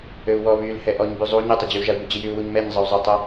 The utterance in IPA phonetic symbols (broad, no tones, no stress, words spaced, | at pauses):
øu̯wɔ βyl hɛʔɔɲ byzˤu ɲətˤəd͡ʑyu̯ ʒau̯bud͡ʑijyu̯ wuɲmɛɲ zˤəu̯zˤətˤɛ